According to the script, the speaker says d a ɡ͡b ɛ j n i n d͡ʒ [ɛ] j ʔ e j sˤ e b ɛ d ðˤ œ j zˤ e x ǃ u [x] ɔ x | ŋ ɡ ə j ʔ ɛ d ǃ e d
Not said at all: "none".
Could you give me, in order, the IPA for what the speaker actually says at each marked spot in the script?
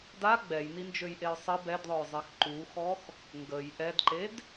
ø, x

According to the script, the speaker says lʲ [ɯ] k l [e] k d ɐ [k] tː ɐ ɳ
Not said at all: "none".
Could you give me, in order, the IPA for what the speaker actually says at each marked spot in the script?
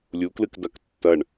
u, ɨ, k

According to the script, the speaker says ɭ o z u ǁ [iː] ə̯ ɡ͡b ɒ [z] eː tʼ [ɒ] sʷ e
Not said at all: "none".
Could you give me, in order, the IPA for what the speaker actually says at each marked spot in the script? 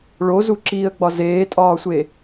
iː, z, ɒː

